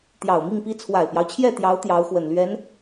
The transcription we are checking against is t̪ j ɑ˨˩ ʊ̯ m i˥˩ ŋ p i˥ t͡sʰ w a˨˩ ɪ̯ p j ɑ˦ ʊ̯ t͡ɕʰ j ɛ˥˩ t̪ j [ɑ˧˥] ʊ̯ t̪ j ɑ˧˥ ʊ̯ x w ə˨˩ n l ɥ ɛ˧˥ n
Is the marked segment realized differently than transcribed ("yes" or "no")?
no